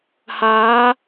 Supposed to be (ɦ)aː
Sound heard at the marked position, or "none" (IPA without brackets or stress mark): h